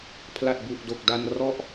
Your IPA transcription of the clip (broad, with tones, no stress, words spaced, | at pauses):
pʰla˨˩t̚bu˨˩ʔdo˨˩k̚da˧n rɔ˥˩ʔ